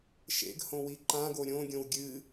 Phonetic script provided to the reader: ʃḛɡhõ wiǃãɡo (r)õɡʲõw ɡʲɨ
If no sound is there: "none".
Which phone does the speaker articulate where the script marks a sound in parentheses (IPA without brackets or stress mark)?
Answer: ɾʲ